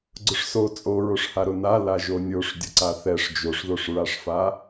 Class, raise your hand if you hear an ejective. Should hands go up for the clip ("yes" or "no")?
yes